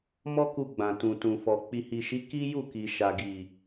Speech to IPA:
mɔ˦ku˧ɡ͡bã˨ tũ˨tũ˨fɔ˨ k͡pi˨hi˨ʃi˨˦ ki˦ju˦˨ki˨ ʃa˨ɡi˨

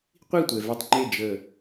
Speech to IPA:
qʷi˦˨tʷɛ˨ vʏ˧tˤŋ͡ǃe˦˨ d͡ʒə˦˨

